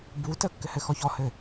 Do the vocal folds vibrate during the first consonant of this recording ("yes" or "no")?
yes